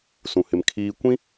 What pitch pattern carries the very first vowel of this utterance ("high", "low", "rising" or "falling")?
low